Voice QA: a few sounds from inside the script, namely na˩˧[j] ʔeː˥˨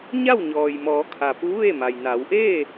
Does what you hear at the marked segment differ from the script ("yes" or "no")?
yes